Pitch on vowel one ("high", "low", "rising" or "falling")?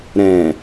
low